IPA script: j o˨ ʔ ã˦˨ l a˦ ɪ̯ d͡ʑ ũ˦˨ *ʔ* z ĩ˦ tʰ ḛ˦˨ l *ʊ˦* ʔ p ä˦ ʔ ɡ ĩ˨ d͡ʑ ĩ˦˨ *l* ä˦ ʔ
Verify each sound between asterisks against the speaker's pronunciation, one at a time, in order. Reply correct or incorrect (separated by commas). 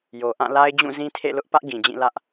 incorrect, correct, correct